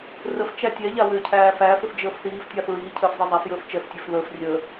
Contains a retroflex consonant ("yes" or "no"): no